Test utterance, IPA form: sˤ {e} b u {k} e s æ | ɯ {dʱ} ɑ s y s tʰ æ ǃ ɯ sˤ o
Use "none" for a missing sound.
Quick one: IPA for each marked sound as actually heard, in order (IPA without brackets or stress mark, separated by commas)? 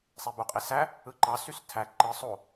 e, qʼ, ǃ